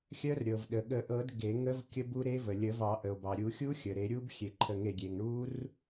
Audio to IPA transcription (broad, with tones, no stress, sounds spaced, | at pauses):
xʲ œ˦˥ r ɾʲ ɤ˩ v ɗ ə˩ ɠ ə˨˩˦ ʔ ɤ˨˩˦ d ɡ e˨˩˦ ŋ ə˦˥ v kʲ ə˦˥ b u˦˥ ɾ e˦˥ v ə˩ lʲ ə˨˩˦ v ɑ˨˩˦ ʔ ə˩ o̯ b ɑ˩ ɾʲ u˨˩˦ xʲ u˦˥ xʲ ə˩ ɾ e˨˩˦ ɾʲ u˦˥ b xʲ e˨˩˦ ǃʰ ə˨˩˦ ŋ e˩ ɡʲ e˩ ŋ ɳ u˦˥ r